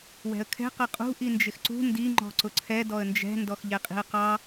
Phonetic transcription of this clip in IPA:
w ɛ̤ ə̯ kʰ ɛ̤ q ʌ qʼ ṳ ʔ i n d͡ʒ ɪ x ǀ ṳ n d i ŋ͡ǃ ɔ̤ ǀ ʊ ǀʰ ɛ d ɔ ə̯ n d͡ʒ ɛ̤ n d ɔ x ʎ ɛ qʼ i̤ ə̯ q ɑ

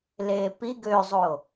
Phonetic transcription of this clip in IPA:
l eː p i ɡ ø zˤ o

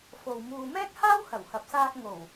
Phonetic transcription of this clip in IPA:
f o˨ w m uː˨ m ɛː˥ k̚ h aː˥ w h ɐ˨˩ w h ɐ˨ p̚ s aː˧ k̚ ŋ o˨˩ w

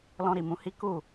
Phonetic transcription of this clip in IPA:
l ɔ̃˧ ɾ i˨ m ũ˨˦ h i˦ k u˦˨

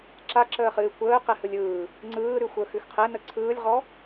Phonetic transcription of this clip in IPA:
ǁ a ǁ əː χ ɨː kʷ əː q ɛ h ɯ lʲ ɯː | ŋ͡ǀ ɯː ɾ ʉ xʷ əː x ʉ x qʰ ɛ n ə ǀʰ ɯː lʲ ʁ ɔ

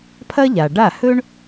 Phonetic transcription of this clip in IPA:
pʰ ɐ˥ ʎ a˩ ɖ a˥˩ h ɵ˥ ɳ

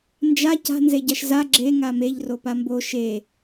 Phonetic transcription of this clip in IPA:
n d͡ʒ a c a̤ n z e ɟ a ʃ z a ɡ͡ǁ e ŋ a m e ʎ r o p a m b o ʃ e

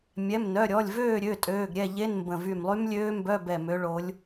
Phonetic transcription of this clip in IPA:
mʲ ɛ˩˧˩ m n œ˩˧˩ ɾʲ ɔ˩˧˩ lʲ v øː˥˨ ɾʲ ø˩˧˩ tʼ øː˩˧˩ ɡ ɾʲ ɛ˥˨ ʎ e˧˥˧ n m b ə̃˧˩ v y˧˩ m lˠ y˦˥ m lʲ øː˦˥ m b œ˧˥˧ b ɛ˧˩ m ø˨˦ ɭ o˨˦ lʲ

